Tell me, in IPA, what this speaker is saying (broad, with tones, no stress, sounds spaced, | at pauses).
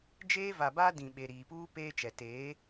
d͡ʒ eː˦ v a˨ b a˦ d ĩ˨ ɓ e˨ ɾ iː˨ p uː˦ p eː˦ t͡ʃ ɛ˨ t eː˨˦